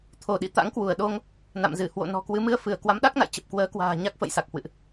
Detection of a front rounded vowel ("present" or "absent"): absent